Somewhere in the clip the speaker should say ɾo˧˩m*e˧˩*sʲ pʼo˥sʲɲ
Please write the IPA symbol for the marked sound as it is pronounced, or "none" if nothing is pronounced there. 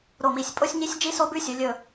i˧˩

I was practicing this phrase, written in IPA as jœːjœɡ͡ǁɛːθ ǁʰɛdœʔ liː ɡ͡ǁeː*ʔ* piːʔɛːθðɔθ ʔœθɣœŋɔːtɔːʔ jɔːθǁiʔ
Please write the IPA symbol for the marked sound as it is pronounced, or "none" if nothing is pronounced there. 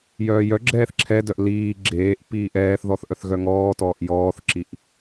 ʔ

